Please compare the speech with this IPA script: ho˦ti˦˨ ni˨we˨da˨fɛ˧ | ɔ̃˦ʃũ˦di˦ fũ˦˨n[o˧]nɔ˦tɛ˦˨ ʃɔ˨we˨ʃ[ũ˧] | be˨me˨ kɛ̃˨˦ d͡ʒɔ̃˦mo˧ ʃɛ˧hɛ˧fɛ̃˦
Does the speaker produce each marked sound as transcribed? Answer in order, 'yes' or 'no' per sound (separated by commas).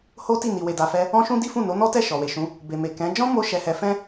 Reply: no, no